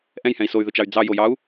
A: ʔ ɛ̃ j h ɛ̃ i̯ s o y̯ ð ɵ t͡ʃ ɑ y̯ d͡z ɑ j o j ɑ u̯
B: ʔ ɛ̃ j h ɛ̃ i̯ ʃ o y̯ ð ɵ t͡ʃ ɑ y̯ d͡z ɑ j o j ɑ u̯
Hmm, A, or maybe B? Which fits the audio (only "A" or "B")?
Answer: A